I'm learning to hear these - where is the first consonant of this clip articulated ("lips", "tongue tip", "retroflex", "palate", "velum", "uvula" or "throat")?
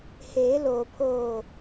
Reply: throat